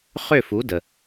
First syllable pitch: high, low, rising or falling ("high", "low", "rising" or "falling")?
falling